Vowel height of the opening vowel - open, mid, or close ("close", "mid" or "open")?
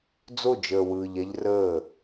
mid